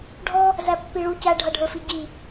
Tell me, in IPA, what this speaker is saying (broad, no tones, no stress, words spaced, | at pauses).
ɖʱɔ | zæpːiɭu cæɖʱʌɖʱə˞fi ɟi